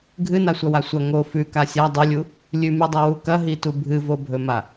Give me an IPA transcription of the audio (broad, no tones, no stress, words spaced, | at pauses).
ɡʱɨnasʷɐwa sʷɐ ŋo fʉka sʲa dˤɵlʲu | lʲʉmʉdˤɐwu kɐɦitu bʱɨvobʱɵma